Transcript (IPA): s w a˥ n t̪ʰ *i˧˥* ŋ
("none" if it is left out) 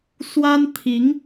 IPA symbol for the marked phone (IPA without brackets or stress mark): i˧˥